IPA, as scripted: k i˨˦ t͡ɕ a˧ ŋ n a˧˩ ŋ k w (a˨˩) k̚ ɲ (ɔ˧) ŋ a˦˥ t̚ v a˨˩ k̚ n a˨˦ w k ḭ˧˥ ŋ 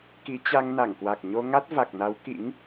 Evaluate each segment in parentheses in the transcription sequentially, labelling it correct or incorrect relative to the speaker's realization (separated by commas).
correct, incorrect